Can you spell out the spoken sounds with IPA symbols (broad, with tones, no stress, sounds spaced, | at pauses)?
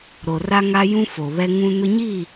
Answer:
ɾ o˨ r a˦ ŋ a˦ j ũ˦ f o˨ β ɛ˦ ŋ ũ˦ n ʊ˦ ɲ iː˦˨